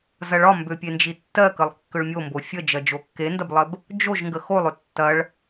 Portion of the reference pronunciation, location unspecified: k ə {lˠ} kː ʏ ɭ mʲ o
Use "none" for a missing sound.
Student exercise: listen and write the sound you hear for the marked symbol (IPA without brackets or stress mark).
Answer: lˠ